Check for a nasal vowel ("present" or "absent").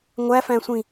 present